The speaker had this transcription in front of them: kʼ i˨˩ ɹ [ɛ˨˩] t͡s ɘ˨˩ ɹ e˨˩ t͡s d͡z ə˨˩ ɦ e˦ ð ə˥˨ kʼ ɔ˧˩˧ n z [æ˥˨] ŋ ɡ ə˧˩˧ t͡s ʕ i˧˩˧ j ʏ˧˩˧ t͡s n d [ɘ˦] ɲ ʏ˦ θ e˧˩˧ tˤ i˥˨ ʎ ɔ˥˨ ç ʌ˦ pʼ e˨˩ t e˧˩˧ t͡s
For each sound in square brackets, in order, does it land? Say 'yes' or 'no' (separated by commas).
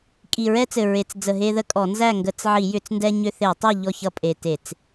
no, yes, no